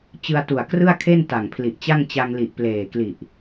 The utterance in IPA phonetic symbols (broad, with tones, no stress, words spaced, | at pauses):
t͡ɕɯ˧a̯tu˨˩a̯ krɯ˥˩a̯kʰe˥˩n ta˨˩ŋpʰli˨˩ʔt͡ɕa˥˩ŋ t͡ɕa˧ŋli˨˩ʔpleː˨˩kli˨˩ʔ